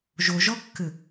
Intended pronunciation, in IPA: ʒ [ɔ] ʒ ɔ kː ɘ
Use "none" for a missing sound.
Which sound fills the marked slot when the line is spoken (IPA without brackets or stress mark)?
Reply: o